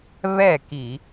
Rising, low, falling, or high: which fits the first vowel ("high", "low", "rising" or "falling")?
falling